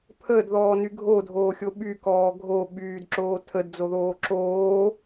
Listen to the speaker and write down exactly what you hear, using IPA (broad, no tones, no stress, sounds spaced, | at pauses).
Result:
pʰ əː d ð ɔː n y ɡʱ o dʱ oː xʲ o ɓ y k ɔː ɡʱ o ɓ yː d ǁ oː tʰ ə d d͡z o ð oː ǁ oː